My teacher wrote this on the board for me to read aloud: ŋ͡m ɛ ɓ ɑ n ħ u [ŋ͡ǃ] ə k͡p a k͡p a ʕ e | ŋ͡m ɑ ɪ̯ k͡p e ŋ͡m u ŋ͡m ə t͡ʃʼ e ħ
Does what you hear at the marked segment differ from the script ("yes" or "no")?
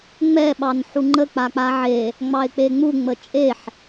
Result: no